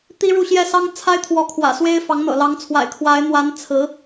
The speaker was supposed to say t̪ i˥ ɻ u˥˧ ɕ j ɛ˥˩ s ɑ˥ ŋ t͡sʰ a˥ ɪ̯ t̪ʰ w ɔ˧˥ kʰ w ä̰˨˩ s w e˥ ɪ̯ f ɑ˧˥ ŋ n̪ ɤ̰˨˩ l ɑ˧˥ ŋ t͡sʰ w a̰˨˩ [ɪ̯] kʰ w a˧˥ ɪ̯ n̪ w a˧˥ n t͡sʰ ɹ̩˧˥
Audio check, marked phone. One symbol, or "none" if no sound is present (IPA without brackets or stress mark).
ɪ̯